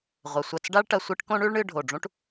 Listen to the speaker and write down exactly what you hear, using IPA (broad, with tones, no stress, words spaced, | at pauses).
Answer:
ʁʷɐ˧sʷɐ˥˧t͡s ɖa˥ɭʈɐ˧ sʷi˥ʈ kõ˥ɳʉ˥ɭɳɨ˥˧ ɖʱo˧˩ɖ͡ʐũ˥ʈ